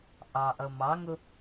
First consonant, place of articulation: glottal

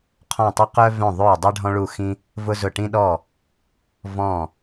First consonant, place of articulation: uvular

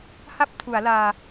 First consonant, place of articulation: glottal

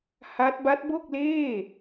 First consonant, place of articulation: glottal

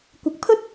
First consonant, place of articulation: velar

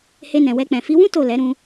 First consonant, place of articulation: glottal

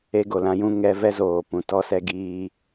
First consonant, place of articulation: velar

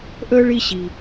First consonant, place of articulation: glottal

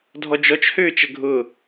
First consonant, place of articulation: alveolar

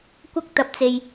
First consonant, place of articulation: velar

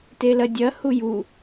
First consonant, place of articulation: alveolar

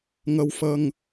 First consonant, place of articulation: velar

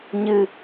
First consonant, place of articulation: palatal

